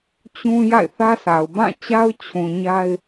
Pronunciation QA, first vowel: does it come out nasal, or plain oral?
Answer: nasal